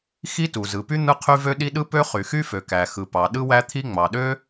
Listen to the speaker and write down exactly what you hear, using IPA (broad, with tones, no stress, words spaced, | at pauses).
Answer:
xi˥tu˩zɯ˩py˥ n̪ɯ˥qʰy˥vø˥ ɗi˥ ɗɯ˥pø˥ χy˩xy˥ fø˩kæ˩xɯ˩ pɑ˩ɗɯ˥wæ˥t̪ʰi˥ ŋ͡mɑ˩ɗø˥